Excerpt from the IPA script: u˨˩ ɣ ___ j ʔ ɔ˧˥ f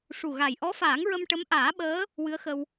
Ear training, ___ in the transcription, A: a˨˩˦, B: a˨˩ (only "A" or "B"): B